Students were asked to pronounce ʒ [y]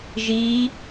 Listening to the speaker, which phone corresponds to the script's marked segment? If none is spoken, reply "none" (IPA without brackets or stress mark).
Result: i